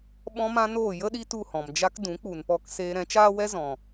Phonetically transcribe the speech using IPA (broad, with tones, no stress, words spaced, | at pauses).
ɓɔ̃˦mã˦noː˦˨ jə˦ɗi˧ tu˦˨hɔ̃˨md͡ʒa˦k dũ˨˦k͡pu˨npɔ˧k seː˧ ɾɛ̃˨˦t͡ʃaː˦wɛ˦ zɔ̃˨